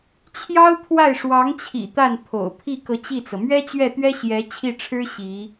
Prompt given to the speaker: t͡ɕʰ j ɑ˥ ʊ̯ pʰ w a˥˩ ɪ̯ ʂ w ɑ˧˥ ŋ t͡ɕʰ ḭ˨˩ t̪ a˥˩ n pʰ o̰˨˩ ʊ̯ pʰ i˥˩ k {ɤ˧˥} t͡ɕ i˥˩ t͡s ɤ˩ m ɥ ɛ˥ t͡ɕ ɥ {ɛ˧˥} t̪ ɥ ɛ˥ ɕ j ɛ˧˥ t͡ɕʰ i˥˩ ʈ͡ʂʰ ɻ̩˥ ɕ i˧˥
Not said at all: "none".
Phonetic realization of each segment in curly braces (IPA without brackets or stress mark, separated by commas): ɤ˧˥, ɛ˥˩